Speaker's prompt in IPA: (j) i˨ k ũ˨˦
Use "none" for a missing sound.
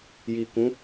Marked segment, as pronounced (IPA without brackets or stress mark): j